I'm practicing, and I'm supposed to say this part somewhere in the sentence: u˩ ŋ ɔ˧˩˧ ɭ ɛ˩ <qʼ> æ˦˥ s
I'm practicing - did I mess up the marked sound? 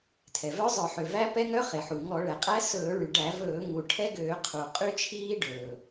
no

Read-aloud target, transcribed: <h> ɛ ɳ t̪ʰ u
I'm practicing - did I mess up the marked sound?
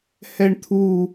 no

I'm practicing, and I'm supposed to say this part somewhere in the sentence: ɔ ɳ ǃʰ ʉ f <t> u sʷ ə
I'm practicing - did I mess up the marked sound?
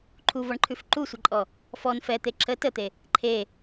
yes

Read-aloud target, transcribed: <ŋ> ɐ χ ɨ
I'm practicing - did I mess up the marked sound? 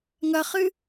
no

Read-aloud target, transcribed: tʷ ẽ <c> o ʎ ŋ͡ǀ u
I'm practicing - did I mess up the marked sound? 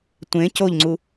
no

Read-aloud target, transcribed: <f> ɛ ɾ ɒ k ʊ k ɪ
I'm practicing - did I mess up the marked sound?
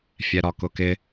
yes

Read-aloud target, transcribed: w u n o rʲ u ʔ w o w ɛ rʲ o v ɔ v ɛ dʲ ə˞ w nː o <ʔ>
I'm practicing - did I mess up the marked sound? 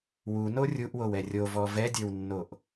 no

